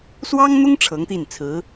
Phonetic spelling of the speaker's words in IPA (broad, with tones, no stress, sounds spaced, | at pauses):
s w ɑ˥ ŋ n̪ ʊ˥ ŋ ʈ͡ʂʰ ɤ˧˥ ŋ t̪ i˥˩ n t͡sʰ ɹ̩˧˥